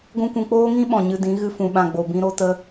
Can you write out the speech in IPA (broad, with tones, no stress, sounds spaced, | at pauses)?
ɡʷ ũ˦ kʷ ũ˧ k͡p oː˦ ŋ ĩ˦ ɓ ɔ̃˨ ɲ ɨ˧ d ĩ˨˦ ɣ ɨ˦ f ũ˧ ɓ ã˧ ɡ͡b o˨ b ĩ˧ ɾ o˧ t ə˦